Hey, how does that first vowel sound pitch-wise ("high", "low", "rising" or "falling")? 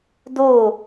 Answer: falling